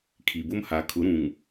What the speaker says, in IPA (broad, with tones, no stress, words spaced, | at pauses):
kʰi˨bʊ˦mha˨˦ kʰʊ˨˦ɾũ˨ŋ